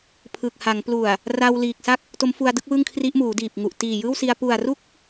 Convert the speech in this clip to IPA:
pʰ ɯː˨˩ k̚ h a˩˦ ŋ p l u˨˩ a̯ | r a˧ w l iː˨˩ k̚ s a˥˩ k̚ | t o˦˥ m f u˧ a̯ d ɯ˦˥ k̚ w ɯ˥˩ ŋ kʰ r i˦˥ ʔ m uː˩˦ d iː˨˩ p̚ ŋ u˨˩ ʔ t iː˨˩ j ɯː˥˩ w s i˧ a̯ p u˨˩ a̯ r u˥˩ k̚

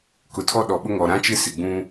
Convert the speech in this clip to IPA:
k ʊ˨ tʰ ɔ˦ ɗ ɔ˨ ɓ ʊ˦ ŋ ɔ˨ ɾ ã˦ t͡ʃ ɪ˦ s ɪ˨ ɡ͡b ũ˦

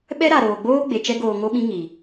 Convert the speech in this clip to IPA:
ɓ ɛ˦ ɾ a˨ ɾ oː˨ ɡ͡b oː˦ ɡ͡b e˨ t͡ʃ ɛ˦ ɡ oː˧ ŋ o˦ ɓ ĩ˦ ŋ i˨

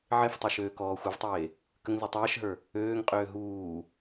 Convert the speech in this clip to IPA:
ʕ e f tˤ o ʃ øː k ɔː xʷ ɛ v tˤ eː | k ə ŋ z e tˤ ɛː ʃ ɦ ə˞ | øː ŋ qʼ øː ɦ uː

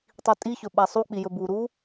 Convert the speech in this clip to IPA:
tˤ i tʼ i ç ɵ ɓ æ sˤ u k͡p i j ɵ b u ɾ u

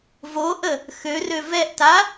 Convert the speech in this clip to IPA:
v o ʔ ə | x ø r ø v ɛ ʔ t a

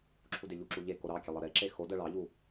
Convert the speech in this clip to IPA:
ǁʰ u d e ʎ u ǁ u ʎ e k o ɾ ɑ kʲ e lˠ ɤ ɾ e ǁ e x o d ɜ ɭ ɑ ʎ u

